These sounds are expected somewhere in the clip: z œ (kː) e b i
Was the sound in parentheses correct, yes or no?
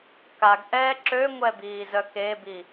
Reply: no